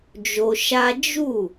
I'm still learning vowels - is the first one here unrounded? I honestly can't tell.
no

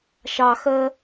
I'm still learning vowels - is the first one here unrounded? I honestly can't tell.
yes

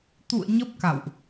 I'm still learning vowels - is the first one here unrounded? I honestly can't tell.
no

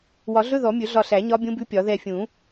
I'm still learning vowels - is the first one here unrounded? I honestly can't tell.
no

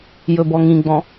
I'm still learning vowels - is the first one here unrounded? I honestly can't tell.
no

